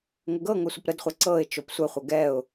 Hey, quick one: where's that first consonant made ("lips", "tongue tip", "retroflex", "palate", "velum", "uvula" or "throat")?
velum